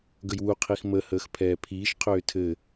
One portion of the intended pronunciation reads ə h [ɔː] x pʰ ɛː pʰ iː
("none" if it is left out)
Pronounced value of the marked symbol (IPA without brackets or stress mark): əː